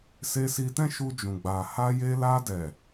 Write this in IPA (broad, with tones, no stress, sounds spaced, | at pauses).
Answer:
s e˧ s i˧ t ɛ̃˦ ʃ u˧ d͡ʒ ũ˨ ɡ͡b a˨ h a˧ j e˧ l a˧ d ɛ˨